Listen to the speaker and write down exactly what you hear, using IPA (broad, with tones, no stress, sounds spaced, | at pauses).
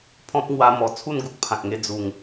pʰ ɔ̃˦ p̚ ŋ w a˦ m ɔ˧ t͡sʰ u˥˧ n ɡ u˦ k̚ pʰ ã˨ k̚ ŋ e˧ d͡z u˨˩ ŋ